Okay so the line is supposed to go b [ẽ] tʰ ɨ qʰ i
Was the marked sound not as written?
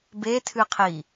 yes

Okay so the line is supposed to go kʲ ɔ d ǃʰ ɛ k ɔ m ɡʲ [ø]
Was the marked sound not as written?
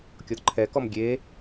yes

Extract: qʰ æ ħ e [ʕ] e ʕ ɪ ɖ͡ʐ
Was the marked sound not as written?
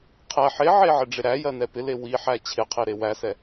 no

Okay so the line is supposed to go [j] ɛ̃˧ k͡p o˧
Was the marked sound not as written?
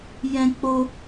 no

